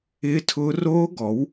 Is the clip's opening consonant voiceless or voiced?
voiceless